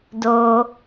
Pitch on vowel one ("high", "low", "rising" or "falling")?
low